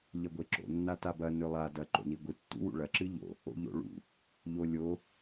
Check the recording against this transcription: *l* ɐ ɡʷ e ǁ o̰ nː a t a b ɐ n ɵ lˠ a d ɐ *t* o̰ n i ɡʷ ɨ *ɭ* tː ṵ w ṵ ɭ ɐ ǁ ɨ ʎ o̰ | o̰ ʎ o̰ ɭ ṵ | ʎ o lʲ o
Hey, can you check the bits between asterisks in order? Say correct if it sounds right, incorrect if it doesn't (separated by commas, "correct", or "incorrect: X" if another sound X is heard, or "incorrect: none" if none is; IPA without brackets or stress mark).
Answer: incorrect: ʎ, incorrect: ǃ, incorrect: none